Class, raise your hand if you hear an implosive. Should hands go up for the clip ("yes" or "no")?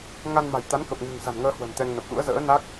yes